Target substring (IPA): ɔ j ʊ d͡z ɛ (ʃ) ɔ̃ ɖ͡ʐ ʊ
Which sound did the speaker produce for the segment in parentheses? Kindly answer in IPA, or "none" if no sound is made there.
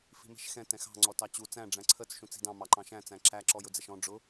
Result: ʃ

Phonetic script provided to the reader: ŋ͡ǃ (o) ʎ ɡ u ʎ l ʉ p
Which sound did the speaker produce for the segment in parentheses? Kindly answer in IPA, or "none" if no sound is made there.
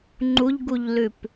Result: u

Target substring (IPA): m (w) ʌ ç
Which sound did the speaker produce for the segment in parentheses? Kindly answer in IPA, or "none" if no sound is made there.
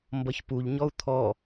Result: b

